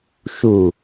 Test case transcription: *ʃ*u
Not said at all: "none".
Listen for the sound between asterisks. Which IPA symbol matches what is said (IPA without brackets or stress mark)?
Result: ʃ